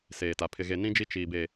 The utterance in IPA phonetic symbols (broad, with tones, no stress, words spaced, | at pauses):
seː˨ta˨ pʰɪ˨ɣe˨ nĩ˦d͡ʒi˦ t͡ʃiː˨be˨